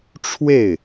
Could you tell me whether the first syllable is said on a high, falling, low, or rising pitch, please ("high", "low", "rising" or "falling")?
falling